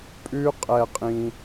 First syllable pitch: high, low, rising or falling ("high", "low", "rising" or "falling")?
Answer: high